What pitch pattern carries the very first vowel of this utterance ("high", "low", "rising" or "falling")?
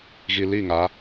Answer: low